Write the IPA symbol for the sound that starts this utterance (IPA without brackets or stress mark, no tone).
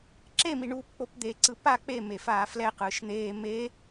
ǁ